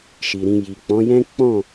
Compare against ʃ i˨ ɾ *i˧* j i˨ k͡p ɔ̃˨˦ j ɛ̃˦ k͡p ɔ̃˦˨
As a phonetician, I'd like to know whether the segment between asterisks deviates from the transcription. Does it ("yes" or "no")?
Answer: yes